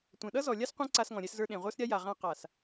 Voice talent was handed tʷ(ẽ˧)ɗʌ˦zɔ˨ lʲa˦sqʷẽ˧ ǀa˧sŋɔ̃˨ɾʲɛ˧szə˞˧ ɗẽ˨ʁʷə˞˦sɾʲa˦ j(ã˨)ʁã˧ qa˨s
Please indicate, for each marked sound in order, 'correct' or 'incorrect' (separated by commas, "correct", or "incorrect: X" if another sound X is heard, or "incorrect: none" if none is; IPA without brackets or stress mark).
incorrect: ẽ˨, incorrect: a˨